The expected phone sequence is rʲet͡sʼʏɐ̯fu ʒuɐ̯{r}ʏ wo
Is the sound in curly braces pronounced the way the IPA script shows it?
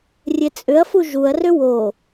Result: yes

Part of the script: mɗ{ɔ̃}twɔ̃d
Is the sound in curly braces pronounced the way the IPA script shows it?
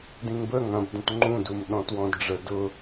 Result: yes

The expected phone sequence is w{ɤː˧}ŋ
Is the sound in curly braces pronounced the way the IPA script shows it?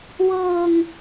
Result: yes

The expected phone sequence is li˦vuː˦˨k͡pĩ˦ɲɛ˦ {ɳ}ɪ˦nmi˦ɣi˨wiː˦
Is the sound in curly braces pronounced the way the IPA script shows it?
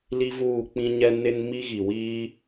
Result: no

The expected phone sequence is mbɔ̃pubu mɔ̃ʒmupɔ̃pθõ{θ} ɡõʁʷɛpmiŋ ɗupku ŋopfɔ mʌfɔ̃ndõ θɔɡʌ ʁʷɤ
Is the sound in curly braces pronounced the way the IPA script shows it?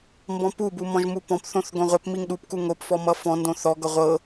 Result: yes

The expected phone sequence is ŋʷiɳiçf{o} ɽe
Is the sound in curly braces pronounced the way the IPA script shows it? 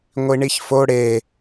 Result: yes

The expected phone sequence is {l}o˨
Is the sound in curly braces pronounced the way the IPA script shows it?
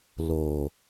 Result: yes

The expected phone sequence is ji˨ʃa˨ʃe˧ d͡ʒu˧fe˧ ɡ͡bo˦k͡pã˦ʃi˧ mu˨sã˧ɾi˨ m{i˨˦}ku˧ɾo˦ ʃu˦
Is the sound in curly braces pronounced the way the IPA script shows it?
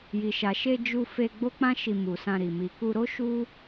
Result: no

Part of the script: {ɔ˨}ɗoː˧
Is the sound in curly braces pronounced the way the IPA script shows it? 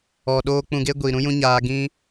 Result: yes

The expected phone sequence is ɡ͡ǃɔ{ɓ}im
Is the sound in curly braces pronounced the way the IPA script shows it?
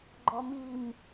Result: no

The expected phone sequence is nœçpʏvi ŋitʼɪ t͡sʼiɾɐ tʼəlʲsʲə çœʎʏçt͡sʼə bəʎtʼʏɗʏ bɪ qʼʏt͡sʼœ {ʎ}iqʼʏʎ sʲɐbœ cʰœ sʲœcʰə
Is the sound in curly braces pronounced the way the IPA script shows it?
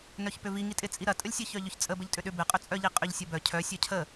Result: yes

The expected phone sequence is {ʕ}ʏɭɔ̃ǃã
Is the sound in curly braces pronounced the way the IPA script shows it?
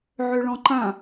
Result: yes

